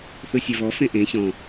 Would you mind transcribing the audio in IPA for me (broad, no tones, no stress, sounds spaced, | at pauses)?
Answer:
θ ɯ sʲ e v ɔ f ẽ ʔ ẽ ç ɔ̃